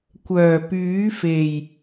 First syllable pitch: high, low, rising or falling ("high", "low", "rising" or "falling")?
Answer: low